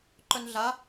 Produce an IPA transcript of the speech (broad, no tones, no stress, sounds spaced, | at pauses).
ǃ œ n ɮ a